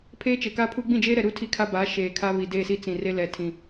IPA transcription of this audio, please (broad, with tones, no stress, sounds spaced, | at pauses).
pʰ eː˦ t͡ʃ e˨ k a˦ pʰ u˦ ɡ͡b ĩ˦˨ d͡ʒ eː˦ ɾ ɛ˨ ɾ u˦ tʰ i˦ kʰ a˦ b aː˨˦ ʃ eː˨ kʰ a˦ β i˨ d eː˦˨ s i˦ t͡s ĩ˨ r e˦ l ɛ˨ tʰ ĩ˨